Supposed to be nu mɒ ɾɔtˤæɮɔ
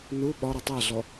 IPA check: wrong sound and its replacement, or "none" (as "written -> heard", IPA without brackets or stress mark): m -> ɓ